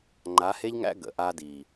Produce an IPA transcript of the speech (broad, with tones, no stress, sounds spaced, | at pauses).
ŋ͡ǃ a˨˦ h e˦ ʎ ŋ æ̰˦ ɡ ə̰˨ ʔ aː˦ d iː˨